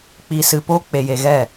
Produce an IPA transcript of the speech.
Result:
k͡p i˧ s ɨ˧ p o˦ k͡p e˧ j e˧ ɣ ɛ˦˨

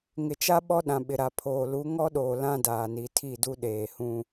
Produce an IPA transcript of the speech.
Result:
ŋ ɪ˨ t͡ʃ a˦ ɓ ɔ˦ ɗ ã˨ ɓ ɪ˨ ɾ a˨ pʰ oː˨ l u˨˦ ŋ ɔ˦ ɗ oː˨ l ã˦ d aː˨ n i˨ tʰ i˦˨ d u˦ ɗ eː˨ h ũ˦

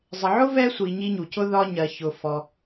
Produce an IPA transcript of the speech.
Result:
zˤ ɪ˨ ʕ ʊ˥ v ɛ˦ sʷ i˨ ɲ i˦ ɲ u˩ c ʊ˥ ð ɒ˥ ɲ ɜ˨ ç ʊ˨ f ɔ˨

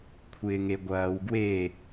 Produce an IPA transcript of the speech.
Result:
kʷʰ ɪː ŋ e ɡʷ ɐː w ɡ w e

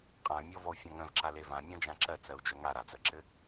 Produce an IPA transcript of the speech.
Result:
qʼ ã y̯ mʲ ɔ v ɔ u̯ fʲ ɔ̃ ŋ œ̃ v ǁ a l e v ã mʲ ɔ̃ d͡ʒ ã ǁ ɜ t͡s ɜ u̯ d͡ʒ œ ŋ a ɾ a d͡z ɜ ǁ ɘ

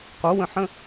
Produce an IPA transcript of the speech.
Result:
q o w ə̃ ħ ə̃

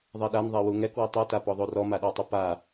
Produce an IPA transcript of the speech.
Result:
ðˤ ɛ ɗ a n ðˤ ɛ w u ŋ ɛ k w ʌ tˤ ʌ t a p ɔ ðˤ o r ɔ m a ɗ o tˤ ʉ p a

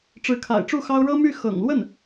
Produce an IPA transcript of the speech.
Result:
ʈ͡ʂ ɻ̩˧˥ kʰ a̰˨˩ ɪ̯ ʈ͡ʂ u˥˩ x ɑ˥ ʊ̯ ɻ ɤ˥ m y˥˩ x ɤ̰˨˩ ŋ l w ə˥˩ n

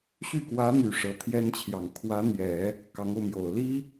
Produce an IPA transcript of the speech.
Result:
ɕ y˥˩ k w ä˧˥ n̪ y˨˩ ʂ ɤ˧˥ t̪ʰ j ɛ˥ n t͡ɕʰ j ɑ˨˩ ŋ kʰ w ä˧˥ n̪ j ɛ˨˩˦ | k ɑ˧˥ ŋ o˧ ʊ̯ m j o˨˩ ʊ̯ l i˥

